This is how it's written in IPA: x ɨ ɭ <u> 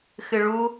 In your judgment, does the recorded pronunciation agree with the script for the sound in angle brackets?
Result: yes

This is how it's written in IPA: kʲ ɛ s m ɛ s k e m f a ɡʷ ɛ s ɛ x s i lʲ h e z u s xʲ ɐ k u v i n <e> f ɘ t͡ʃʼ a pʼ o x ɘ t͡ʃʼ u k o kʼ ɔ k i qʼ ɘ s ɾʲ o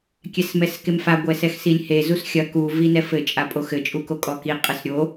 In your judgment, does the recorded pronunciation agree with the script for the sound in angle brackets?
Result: no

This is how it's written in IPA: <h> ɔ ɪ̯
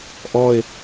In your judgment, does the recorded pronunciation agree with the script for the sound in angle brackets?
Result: no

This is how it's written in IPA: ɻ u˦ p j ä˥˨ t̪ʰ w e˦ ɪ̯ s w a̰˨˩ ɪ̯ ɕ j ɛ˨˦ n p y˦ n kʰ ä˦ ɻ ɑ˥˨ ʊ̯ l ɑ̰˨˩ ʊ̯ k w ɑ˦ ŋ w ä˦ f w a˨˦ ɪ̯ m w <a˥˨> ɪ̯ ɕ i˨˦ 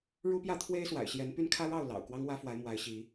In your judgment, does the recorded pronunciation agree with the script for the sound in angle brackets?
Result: no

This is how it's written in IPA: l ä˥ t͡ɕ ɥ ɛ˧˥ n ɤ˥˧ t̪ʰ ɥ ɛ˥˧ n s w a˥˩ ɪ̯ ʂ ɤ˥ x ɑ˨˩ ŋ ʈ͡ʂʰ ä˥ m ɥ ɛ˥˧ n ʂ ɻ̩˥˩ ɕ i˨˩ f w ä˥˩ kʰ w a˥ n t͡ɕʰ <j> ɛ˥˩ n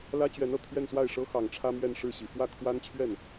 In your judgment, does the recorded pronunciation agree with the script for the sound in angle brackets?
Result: no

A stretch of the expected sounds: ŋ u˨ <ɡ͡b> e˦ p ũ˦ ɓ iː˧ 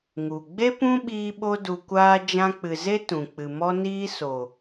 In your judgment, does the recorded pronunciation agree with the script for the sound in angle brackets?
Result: yes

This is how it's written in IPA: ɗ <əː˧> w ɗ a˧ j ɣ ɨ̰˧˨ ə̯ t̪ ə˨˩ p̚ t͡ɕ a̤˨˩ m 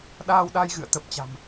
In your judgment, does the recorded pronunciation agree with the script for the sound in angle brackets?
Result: no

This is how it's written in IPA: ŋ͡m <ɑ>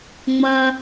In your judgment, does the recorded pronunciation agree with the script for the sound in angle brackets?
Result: no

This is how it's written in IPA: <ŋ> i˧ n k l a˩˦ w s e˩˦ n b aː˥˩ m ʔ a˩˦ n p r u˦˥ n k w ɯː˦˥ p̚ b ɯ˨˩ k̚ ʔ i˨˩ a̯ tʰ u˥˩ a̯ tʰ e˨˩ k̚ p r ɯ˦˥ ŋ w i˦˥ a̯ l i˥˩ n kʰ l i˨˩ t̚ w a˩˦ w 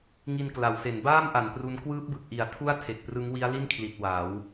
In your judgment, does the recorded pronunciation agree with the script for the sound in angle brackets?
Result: yes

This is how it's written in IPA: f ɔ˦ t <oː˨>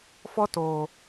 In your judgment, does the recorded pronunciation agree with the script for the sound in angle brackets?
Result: yes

